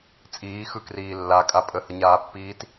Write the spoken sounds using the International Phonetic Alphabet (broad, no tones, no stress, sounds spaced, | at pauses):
t͡sʼ iː x ɯ k r iː lː a kʼ a pʼ ə h ə ɲ aː pː iː t